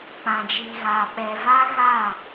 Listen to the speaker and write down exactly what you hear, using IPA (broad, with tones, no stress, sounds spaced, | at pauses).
k͡p ã˨ d͡ʒ iː˨ ɣ aː˨ ɓ ɛ˨ v a˦ ɣ aː˦˨